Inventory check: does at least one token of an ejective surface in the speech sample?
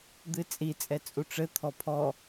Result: yes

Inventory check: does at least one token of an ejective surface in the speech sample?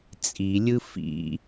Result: yes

